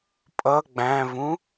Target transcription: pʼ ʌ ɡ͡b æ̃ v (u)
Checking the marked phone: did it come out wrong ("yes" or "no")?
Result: yes